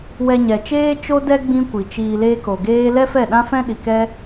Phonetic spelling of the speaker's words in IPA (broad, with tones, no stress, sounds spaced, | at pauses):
w ɛ˧ ɲ ɛ˨ t͡ʃ eː˦ t͡ʃ o˦ d ɛ˦ ɡ͡b ĩ˦ kʷ i˨ t͡ʃ iː˧ l eː˦ k o˨ ɡ eː˦ l ɛ˦ f ɛ˦˨ ɗ ã˦ f ɛ̃˦ ɗ i˨ k ɛ˦